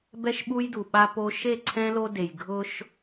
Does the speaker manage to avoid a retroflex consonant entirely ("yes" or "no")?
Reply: yes